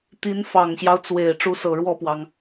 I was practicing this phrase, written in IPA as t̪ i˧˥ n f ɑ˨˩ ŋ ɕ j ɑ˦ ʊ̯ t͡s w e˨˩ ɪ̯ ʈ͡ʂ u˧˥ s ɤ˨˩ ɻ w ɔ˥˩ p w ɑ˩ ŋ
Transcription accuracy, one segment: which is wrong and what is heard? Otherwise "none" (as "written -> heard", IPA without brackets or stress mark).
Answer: none